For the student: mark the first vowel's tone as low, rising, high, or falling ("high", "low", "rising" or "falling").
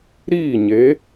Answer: falling